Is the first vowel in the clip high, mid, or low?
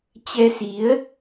mid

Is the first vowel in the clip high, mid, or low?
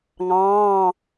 low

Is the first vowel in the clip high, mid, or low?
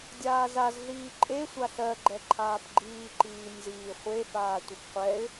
low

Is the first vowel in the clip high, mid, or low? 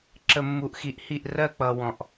mid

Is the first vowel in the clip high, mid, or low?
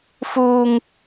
high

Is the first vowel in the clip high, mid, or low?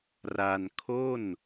low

